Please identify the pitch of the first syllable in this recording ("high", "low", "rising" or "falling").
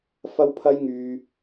high